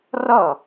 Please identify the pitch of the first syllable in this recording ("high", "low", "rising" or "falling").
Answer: falling